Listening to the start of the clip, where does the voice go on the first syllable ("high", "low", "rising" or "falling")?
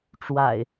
low